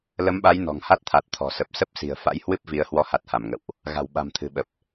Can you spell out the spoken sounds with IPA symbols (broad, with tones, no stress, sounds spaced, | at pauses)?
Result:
l ə˨˦ m ɓ a˨˦ j n ɔ̤˨˩ ŋ h a˦˥ t̚ t̪ʰ a˨˩ t̚ t̪ʰ ɔ̤˨˩ s ə˨˩ p̚ s ə˦˥ p̚ s i̤˨˩ ə̯ f a̰˧˥ j h w ɨ˦˥ p̚ v i˨˦ ə̯ h w ɔ˨˦ h a˨˩ t̚ h a˧˩ m ŋ ə̰˧˨ w ʔ | ɣ a̤˨˩ w ɓ a̤˨˩ m t̪ʰ ɨ̤˨˩ ɓ ə˨˩ p̚